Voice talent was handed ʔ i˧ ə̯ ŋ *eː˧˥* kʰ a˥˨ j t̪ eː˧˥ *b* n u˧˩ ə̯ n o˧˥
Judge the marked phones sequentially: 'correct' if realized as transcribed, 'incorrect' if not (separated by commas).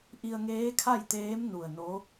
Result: correct, incorrect